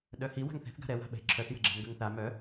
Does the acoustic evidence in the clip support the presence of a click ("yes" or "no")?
yes